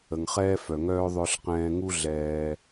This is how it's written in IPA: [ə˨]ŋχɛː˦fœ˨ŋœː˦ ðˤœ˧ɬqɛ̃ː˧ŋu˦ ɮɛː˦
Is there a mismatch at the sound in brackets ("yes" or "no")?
no